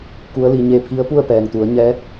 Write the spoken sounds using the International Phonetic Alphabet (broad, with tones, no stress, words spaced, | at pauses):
ku˧˥ə̯li˩˧ ɲe˧pʰi˧˥ə̯pu˥˨ə̯ pɛː˩ŋt̪u˩˧ə̯ɲɛː˧˥t̚